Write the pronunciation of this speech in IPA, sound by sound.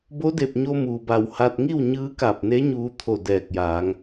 bo˧˥de˧˩p̚ɲo˧ muː˩ba˧˩whaː˧t̚ ŋi˥˨wɲɯː˧˥ka˧˩p̚ne˧˥ ɲuː˧t̪ʰo˧˩ dɛː˧˩k̚jaː˩˧ŋ

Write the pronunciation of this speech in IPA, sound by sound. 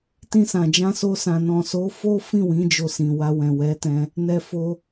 tĩ˧sã˨d͡ʒã˧ so˧sã˨ nɔ̃˨so˨˦ fo˦fĩ˦˨wĩ˨˦ d͡ʒo˧sĩ˨ wa˧wɛ̃˨wɛ˨˦tɛ̃˧ | nɛ˧fo˧

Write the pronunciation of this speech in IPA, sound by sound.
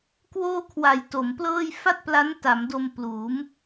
kwoː˥˩kʰwa˨˩jto˩˦mplɤː˥˩j fa˥˩t̚pla˦˥nta˩˦mdo˧m pluː˩˦m

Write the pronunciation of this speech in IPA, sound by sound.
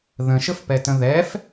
ðə̃ʃəfpɛtə̃ ðɛf

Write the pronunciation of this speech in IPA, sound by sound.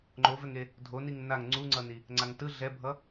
ŋ͡ǃovɛŋe | dʱoniŋ naŋ ŋ͡ǀuŋ͡ǀʌni | ŋ͡ǀaŋtɯ ɮɛbʱʌ

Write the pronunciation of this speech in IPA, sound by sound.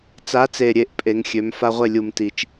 t͡sa˨˦t͡se˨˩ɾʲe˨˩ʔ pʼe˨˦ŋxʲø˨˦m fa˦ʁʷe˥˩lʲu˧˩˧mti˨˩t͡ʃ

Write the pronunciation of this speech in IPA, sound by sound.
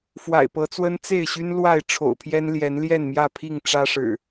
fwa̰˨˩ɪ̯pɤ˨˦t͡swə˦n t͡se˥˨ɪ̯ɕy˦n lwa˥˨ɪ̯ʈ͡ʂʰo̰˨˩ʊ̯pʰjɛ˦n ljɛ˨˦nljɛ˥˨nmjä˥˨ pʰi˥˨ŋ ʈ͡ʂä˦ʂɻ̩˨˩

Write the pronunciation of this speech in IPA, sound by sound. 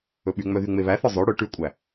ɵɓyŋ͡mœ ðyŋ͡meβæθɔ zˤø ɽɵ ʈʉkʷʼæ

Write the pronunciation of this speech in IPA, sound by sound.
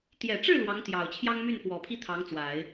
t̪jɛ˨˩ʈ͡ʂɻ̩˥˩ lwɑ˧˥ŋt̪jɑ˨˩ʊ̯ t͡ɕʰjɑ˥ŋmy˥˩nfwɔ˨˩pʰi˥ t̪ʰɑ˧˥ŋt͡swa˨˩˦ɪ̯

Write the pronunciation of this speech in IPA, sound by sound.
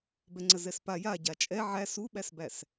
bɛŋ͡ǀəzɛspa ja ɟat͡ʃʼɛ ʕæs uɓæsbæs

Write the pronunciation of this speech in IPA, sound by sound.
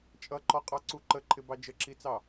t͡ʃʼʌǃɔqʼɑǀu ǃəǃʰɪbɑ d͡ʒəǁit͡sɑ

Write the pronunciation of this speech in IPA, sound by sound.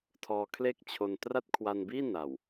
tʰɔː˧kʰle˥˩k̚ t͡ɕʰo˧n tra˥˩t̚kʰwa˧nbiː˥˩ na˨˩w

